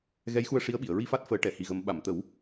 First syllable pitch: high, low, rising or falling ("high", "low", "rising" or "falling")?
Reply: rising